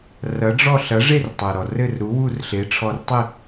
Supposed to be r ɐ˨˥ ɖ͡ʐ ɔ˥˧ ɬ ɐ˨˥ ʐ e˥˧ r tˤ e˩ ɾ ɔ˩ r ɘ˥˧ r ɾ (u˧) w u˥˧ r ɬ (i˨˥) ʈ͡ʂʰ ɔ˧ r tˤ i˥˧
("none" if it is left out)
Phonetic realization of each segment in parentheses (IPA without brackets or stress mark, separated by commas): u˨˥, e˨˥